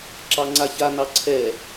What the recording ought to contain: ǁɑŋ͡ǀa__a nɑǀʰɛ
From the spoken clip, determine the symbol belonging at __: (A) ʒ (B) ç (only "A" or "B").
B